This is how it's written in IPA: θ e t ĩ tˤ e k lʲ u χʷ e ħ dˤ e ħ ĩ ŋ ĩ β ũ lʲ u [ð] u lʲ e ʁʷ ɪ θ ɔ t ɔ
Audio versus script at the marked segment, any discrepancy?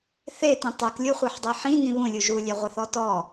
yes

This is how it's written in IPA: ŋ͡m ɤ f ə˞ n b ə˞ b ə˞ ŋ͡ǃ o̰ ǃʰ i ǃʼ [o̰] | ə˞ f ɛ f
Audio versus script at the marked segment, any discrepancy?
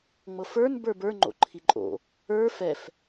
no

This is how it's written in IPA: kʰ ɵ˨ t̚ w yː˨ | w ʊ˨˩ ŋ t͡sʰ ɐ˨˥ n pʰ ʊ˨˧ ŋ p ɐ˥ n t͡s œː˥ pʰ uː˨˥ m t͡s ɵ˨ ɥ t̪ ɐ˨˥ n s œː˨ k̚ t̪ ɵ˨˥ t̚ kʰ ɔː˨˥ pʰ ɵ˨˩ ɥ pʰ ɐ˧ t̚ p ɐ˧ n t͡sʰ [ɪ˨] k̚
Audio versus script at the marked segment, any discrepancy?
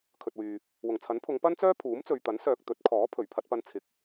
no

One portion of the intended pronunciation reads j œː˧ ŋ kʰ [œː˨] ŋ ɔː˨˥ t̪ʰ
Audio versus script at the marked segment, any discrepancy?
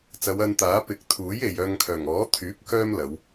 yes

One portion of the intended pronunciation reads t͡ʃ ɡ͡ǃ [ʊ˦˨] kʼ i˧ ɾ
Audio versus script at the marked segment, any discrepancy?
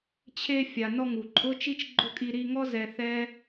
no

